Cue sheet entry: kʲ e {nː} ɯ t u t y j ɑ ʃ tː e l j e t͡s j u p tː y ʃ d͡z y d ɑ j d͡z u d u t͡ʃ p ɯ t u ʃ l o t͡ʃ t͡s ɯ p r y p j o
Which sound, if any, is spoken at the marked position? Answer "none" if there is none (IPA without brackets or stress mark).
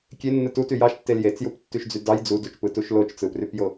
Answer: nː